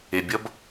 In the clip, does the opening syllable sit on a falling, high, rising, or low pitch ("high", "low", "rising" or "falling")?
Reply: low